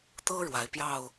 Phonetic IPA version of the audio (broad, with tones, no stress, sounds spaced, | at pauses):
t̪ ɤ˦ ɻ w a˨˦ ɪ̯ p j ɑ˥˨ ʊ̯